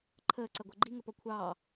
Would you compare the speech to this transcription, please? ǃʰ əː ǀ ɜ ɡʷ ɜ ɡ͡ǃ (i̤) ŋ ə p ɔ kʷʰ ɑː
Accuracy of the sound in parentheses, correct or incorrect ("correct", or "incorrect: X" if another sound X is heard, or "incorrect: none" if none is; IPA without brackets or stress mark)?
incorrect: i